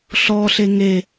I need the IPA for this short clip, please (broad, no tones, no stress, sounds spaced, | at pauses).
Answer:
ɬ ɔ ɬ e ŋ e